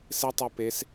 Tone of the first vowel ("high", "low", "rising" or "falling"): high